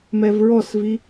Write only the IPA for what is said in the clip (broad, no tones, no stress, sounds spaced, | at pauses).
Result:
m ɛ v ɹ ɔ s v i